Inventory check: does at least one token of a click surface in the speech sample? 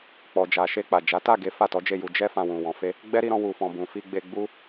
no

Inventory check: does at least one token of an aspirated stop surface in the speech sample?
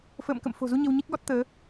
no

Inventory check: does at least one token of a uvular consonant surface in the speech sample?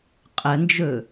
yes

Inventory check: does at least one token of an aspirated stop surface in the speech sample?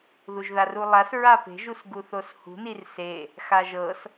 no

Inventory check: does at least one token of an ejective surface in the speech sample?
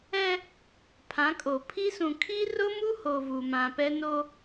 yes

